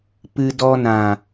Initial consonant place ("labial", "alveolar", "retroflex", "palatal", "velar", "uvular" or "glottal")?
labial